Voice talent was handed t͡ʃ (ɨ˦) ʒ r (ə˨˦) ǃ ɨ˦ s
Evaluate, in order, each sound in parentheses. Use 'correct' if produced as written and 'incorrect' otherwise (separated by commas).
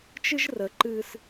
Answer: correct, correct